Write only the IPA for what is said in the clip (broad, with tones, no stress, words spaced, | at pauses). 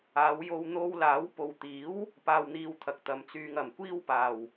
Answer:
aː˨˧wjo˧wn̪o˧w laː˨˥wpo˨w t̪iː˨˥w | paː˧wn̪iː˧wt̪ʰɐ˨k̚ t̪ɐ˨mt͡syː˧ŋɐ˨˩m kʷiː˥wpaː˨˩w